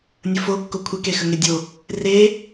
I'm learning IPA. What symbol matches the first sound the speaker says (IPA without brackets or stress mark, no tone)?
nʲ